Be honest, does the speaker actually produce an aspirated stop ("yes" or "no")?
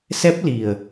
no